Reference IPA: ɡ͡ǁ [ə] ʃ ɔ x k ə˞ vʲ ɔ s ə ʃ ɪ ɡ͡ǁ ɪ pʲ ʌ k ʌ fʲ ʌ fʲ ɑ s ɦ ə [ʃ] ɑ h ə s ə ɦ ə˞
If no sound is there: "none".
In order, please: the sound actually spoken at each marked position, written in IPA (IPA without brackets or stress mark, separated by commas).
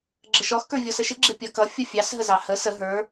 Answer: ə, z